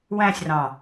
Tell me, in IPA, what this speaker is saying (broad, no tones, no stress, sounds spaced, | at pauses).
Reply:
w æ̃ sʲ r ɑ̃